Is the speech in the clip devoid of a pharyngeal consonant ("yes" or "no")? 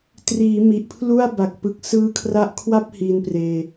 yes